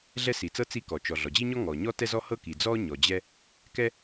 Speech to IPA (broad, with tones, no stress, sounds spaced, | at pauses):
ɮ ɛ˥ s i˩ t͡s ɤ˥ t͡s i˥ k ɔ˩ t͡ʃ ɔ˩ ɮ ɔ˩ d͡ʑ i˥ ɲ ɔ˥ ŋ ɔ˩ ɲ ɔ˥ t ɛ˥ z ɔ˥ h ɤ˥ k i˩ d͡z ɔ˥ ɲ ɔ˩ d͡ʑ ɛ˥ | k ɛ˥